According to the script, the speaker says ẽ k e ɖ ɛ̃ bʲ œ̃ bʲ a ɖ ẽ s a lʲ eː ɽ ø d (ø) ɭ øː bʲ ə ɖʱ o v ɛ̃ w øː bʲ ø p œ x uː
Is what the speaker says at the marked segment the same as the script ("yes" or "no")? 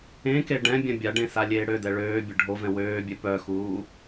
no